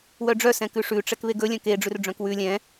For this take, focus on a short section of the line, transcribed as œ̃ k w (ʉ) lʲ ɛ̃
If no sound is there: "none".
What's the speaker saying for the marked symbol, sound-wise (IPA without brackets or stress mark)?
ʉ